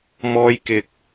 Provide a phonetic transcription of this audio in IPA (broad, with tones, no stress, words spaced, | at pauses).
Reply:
mɔː˧jkɪ˨k̚